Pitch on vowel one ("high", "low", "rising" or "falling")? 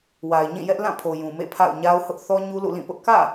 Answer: low